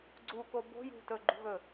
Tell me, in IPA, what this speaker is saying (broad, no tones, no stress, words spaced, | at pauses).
ɡ͡ǀu kobo̤ jṳtɵ ɡ͡ǃṳɣɵ